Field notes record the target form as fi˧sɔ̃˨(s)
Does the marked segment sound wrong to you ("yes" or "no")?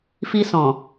yes